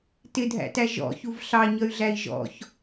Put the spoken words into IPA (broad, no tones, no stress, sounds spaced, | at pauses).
t ɪ dʱ æ̰ t æ ʒ ɔ̰ ç u v ɬ ɑ ɲ ʌ y̯ ɮ æ i̯ ʒ ɔ̰ ç